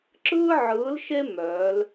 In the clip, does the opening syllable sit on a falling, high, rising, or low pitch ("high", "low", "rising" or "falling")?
high